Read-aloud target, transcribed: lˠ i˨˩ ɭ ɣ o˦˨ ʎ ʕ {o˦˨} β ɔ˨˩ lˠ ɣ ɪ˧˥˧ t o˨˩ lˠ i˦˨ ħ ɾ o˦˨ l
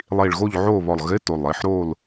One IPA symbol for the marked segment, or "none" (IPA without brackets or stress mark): o˦˨